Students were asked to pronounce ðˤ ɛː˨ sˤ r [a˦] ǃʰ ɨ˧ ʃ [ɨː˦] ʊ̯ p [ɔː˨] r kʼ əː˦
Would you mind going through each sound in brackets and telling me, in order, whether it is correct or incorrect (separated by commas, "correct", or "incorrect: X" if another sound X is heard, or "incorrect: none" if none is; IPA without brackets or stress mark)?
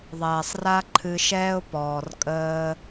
correct, incorrect: ɛː˦, correct